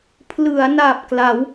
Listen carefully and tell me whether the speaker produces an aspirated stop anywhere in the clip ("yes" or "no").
yes